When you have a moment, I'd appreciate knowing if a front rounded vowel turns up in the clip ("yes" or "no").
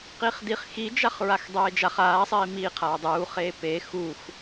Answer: no